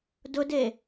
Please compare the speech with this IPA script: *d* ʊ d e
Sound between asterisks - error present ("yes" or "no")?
no